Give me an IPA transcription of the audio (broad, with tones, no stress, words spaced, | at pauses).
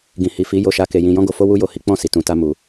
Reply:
ɡĩ˨hi˨fi˨˦ jo˦˨ʃa˧ ke˨jĩ˨ jɔ̃˧ɡo˨fo˧ wu˦jo˧hi˦ k͡pɔ̃˦˨si˨tũ˨ ta˧mu˨